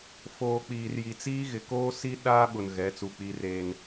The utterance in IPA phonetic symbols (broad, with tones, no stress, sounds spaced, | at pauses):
f oː˨ k͡p iː˨ r j i˨ t͡s iː˦ ɣ ɪ˨ k oː˦ s i˦ ɗ aː˦ ɓ ʊ˨ n ɣ ɛ˨˦ t͡s u˨ k͡p i˦ r eː˦ n